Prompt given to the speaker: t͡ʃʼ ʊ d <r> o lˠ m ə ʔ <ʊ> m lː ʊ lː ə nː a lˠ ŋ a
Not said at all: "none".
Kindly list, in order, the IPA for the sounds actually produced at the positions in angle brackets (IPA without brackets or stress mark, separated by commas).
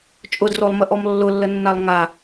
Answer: r, ɔ